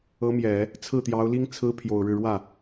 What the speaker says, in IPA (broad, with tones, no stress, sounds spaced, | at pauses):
ɤ˧˥ m j ɛ˨˩˦ | t͡sʰ ɹ̩˥˩ t̪ j ɑ˧˥ ʊ̯ l i˥ ŋ t͡sʰ ɹ̩˥ pʰ j o˨˩ ʊ̯ ɻ ɻ̩˥˧ ɻ w ä˥˩